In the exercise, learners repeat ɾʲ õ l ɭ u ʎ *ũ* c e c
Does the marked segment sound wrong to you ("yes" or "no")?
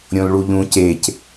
no